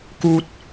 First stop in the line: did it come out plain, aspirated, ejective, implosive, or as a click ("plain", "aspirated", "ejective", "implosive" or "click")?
plain